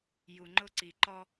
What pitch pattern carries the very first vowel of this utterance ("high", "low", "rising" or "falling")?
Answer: low